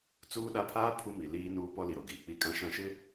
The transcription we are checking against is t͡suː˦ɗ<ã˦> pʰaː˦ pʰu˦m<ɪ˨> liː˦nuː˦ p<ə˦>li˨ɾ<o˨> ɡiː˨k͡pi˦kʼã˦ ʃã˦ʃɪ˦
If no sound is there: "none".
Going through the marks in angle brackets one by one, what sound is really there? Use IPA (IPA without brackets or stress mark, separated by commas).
a˦, i˨, ɔ˦, o˨